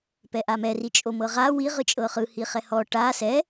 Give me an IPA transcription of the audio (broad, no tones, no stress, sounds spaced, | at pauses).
p ɛ ʔ a m ɛ r i t͡ʃʼ o m ɤ ʁ a w i ʁ ɯ t͡ʃʼ ɤ χ ɯ h i χ ɛ h ɔ ʈ a s ɛ